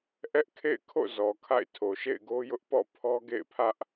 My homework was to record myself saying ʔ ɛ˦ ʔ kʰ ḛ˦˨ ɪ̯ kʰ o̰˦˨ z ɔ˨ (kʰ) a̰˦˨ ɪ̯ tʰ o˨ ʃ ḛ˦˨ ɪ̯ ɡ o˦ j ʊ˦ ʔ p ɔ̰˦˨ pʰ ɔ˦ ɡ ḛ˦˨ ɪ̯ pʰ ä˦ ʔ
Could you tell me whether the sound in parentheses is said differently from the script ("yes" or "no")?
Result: no